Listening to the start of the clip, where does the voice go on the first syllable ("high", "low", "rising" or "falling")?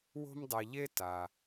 high